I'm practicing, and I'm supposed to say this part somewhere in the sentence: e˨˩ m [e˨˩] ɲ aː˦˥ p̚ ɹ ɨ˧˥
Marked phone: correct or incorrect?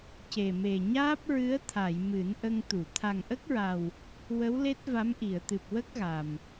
correct